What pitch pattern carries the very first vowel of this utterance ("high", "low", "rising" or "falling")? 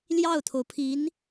falling